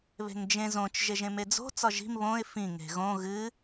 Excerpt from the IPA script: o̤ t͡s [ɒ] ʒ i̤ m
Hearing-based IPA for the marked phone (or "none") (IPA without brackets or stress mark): ɒ